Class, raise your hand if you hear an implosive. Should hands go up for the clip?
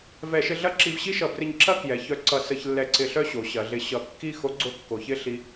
no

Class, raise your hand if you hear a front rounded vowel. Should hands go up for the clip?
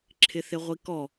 no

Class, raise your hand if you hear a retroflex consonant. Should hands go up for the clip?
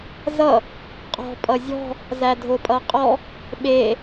no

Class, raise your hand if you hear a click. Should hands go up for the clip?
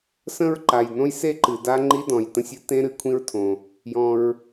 yes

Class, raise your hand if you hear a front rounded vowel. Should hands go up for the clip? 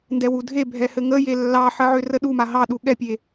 yes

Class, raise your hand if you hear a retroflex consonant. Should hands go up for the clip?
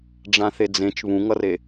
yes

